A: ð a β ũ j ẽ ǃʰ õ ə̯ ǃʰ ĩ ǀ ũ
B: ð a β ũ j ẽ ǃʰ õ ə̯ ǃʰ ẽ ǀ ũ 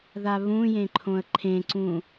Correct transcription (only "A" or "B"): B